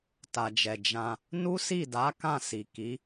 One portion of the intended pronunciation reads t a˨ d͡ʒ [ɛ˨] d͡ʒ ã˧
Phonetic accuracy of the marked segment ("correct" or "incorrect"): correct